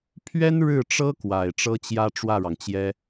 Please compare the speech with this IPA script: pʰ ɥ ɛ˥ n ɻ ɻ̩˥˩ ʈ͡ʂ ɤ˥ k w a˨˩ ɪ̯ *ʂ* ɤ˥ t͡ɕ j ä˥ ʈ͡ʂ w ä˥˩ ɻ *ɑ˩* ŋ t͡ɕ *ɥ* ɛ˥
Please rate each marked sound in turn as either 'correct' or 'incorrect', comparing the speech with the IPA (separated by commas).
incorrect, correct, incorrect